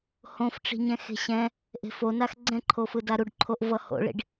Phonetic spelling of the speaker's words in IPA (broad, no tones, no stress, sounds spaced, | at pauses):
h õ f ʈ͡ʂ i̤ ɲ ɛ̃ x e̤ ɕ ɛ̃ | ʔ e̤ f o n a x ɡ͡ǀ ɛ̃ ǃʰ o f ɯ d a ɾ u ɖ ǃʰ o ʔ v ʌ h o̰ ɭ ḭ ɖ